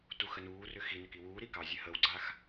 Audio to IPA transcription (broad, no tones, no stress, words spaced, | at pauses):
tuxənuːrʏ xinʏk iwuːɾi kɑzʲɘ həwɡ͡ǀax